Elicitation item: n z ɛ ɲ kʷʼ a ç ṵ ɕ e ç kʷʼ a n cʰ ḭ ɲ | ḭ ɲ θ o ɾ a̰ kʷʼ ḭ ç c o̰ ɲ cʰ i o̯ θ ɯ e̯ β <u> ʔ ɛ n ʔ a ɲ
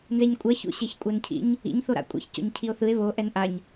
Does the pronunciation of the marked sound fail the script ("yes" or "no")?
yes